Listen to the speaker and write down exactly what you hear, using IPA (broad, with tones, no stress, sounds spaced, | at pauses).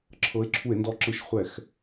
ǁʰ ɤ˨˥ e̯ ǁʰ u˧˩˧ e̯ n d ɔ˧ ǁ ɯ˧˩˧ ʃ χʷ ɛ˧˩˧ x